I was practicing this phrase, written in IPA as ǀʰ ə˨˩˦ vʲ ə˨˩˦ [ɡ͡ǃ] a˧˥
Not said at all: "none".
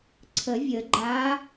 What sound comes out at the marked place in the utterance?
ɡ͡ǃ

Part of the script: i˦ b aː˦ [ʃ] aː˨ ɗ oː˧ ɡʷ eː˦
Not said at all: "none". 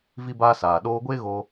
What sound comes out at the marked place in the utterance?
s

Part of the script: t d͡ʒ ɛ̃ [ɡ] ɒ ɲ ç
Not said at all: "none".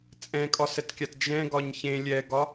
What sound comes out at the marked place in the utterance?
ɡ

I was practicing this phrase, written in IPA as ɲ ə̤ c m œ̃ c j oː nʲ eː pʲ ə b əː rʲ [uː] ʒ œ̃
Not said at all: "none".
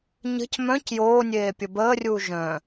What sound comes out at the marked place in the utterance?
uː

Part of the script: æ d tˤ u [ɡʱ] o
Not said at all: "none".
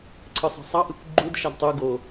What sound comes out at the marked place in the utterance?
ɡ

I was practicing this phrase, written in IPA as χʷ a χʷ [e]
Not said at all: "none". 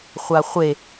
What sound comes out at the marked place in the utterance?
e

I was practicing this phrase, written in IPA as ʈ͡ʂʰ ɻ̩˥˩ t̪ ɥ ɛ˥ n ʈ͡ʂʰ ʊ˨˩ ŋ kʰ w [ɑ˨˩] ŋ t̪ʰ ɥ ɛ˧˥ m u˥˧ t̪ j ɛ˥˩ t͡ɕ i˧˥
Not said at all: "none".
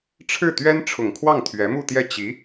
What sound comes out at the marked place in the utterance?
ɑ˥˩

